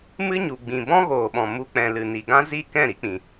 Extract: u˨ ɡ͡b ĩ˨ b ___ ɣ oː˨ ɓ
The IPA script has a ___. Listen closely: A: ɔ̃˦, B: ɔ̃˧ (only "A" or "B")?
A